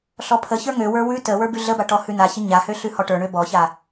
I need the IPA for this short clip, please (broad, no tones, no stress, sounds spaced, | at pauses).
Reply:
ɬ ɔ pʰ ə ç ə˞ ŋ ø w ə˞ w ʉ t ə w ə˞ b ʉ ɮ ə b a ʈ ɔ h ʉ n a ç ə ɲ a h ø ɬ ʉ h ɔ ʈ ə˞ ɳ ø b ɔ ç a